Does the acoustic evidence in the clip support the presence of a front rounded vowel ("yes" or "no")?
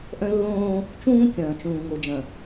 yes